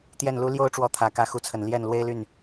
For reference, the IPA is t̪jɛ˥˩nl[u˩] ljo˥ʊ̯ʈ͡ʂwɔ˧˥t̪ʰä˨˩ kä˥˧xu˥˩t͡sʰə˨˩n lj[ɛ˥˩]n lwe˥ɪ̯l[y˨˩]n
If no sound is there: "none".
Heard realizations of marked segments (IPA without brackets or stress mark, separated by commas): u˥, ɛ˥˩, y˥˩